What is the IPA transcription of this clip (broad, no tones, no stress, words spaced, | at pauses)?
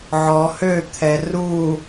ʕɔ høt̪ʰɛ ru